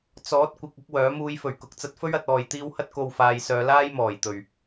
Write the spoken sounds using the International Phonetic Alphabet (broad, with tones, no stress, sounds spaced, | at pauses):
t͡s ɔː˨˥ t̚ kʷ ɪ˨ k̚ ʊ˥ k̚ w œː˨˥ m uː˧ j f ɵ˨˩ ɥ k ʊ˨ k̚ t͡s ɐ˧ t̚ f ɵ˥ ɥ ɐ˧ t̚ ɔː˧ j t̪ iː˥ w h ɐ˥ t̚ k o˧ w f aː˨ j s œː˨˧ l aː˥ j m ɔː˨˩ j t̪ ɵ˨˩ ɥ